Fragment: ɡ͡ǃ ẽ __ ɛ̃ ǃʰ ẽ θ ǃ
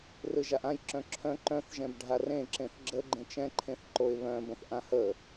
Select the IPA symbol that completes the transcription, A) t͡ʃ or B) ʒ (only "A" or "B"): A